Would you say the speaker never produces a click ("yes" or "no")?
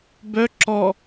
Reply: no